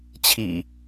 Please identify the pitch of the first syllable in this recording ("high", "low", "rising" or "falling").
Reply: low